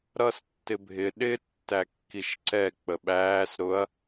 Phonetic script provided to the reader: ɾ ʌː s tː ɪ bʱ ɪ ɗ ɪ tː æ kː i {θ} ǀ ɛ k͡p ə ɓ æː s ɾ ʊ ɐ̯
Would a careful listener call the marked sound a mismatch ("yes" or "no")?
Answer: yes